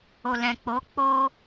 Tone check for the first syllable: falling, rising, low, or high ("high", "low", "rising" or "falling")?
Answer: low